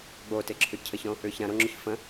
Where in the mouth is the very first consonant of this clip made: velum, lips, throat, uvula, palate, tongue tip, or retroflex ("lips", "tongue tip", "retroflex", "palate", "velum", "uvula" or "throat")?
velum